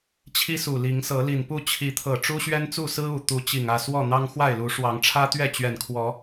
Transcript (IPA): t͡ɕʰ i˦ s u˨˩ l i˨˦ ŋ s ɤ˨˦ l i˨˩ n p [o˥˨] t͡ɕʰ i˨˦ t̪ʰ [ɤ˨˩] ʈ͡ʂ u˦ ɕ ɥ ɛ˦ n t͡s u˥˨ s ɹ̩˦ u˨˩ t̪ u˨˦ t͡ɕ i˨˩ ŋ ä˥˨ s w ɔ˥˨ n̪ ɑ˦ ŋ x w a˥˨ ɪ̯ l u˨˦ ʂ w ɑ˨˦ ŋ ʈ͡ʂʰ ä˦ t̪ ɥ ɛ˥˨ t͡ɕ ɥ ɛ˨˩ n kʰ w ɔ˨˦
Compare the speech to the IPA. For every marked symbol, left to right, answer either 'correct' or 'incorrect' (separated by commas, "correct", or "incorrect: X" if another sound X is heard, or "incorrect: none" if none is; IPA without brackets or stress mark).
incorrect: u˥˨, correct